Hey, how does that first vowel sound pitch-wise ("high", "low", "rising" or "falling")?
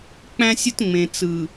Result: high